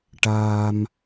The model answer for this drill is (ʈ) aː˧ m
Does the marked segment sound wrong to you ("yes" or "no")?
no